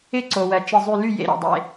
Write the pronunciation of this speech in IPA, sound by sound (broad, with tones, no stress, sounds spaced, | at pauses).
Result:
ɪ˥˩ ǀ o˩ w ɜ˩ t͡ʃ ɪ˧˩ zˤ y˧˩ l y˥˩ j ḛ˧˩ ɾ o̰˩ dˤ ḛ˥˩